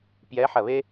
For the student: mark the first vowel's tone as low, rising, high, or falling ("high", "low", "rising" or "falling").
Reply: rising